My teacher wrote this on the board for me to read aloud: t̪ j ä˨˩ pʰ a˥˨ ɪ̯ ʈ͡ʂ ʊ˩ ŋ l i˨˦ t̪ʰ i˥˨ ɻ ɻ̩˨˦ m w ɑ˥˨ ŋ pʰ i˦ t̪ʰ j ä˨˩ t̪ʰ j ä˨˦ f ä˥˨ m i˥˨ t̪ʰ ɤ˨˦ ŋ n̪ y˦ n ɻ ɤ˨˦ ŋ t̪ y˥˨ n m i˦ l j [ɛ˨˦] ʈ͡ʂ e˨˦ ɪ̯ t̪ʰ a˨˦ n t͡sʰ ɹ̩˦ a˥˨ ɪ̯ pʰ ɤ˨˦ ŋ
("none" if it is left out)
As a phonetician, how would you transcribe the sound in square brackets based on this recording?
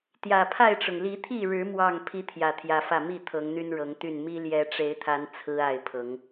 ɛ˨˦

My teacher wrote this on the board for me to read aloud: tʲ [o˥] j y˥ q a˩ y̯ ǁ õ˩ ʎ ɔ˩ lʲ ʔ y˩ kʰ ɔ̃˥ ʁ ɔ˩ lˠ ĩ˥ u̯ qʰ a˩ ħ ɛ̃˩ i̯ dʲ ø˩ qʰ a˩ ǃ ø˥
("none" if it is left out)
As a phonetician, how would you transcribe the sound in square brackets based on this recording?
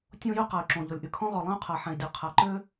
õ˥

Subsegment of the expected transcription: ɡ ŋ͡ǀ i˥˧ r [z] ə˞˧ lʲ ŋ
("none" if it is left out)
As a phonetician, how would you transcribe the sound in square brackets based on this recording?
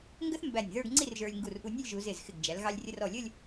ʒ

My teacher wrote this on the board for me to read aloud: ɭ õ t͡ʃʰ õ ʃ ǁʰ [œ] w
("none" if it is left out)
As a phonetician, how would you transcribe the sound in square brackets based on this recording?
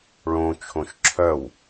œ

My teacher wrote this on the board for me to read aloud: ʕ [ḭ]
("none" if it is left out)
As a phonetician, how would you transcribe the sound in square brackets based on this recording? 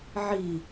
i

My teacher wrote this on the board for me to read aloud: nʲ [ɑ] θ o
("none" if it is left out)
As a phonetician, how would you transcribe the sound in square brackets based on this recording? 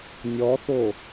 ɔ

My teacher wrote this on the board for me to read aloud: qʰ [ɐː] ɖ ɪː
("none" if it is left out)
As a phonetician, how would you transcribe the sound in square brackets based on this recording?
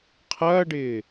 ɐː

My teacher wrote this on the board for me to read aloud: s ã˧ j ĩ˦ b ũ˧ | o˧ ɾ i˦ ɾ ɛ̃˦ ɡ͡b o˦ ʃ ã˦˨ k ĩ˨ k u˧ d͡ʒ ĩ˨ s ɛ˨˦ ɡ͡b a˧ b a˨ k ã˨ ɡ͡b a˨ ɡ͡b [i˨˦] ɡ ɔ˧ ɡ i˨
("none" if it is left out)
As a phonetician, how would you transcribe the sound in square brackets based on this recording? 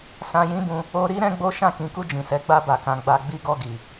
i˧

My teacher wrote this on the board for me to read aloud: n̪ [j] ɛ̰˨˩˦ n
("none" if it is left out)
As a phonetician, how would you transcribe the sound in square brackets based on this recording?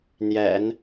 j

